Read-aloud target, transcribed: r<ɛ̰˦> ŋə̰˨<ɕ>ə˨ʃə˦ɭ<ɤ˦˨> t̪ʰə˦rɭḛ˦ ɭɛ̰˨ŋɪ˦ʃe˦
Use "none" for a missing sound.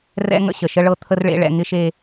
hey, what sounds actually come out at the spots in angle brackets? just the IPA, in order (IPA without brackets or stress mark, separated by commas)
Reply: ɛ̰˦, ɕ, ɤ˦